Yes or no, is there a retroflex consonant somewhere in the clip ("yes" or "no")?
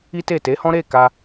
no